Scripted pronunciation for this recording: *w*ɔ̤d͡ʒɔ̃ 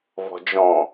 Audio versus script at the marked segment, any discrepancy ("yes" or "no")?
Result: yes